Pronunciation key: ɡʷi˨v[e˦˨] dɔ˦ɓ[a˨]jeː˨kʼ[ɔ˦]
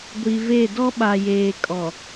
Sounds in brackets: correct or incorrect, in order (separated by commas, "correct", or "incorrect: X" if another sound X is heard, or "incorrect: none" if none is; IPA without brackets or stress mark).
correct, correct, incorrect: ɔ˨